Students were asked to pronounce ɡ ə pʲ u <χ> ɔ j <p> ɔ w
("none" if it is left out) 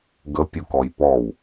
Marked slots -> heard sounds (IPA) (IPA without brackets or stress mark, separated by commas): k, p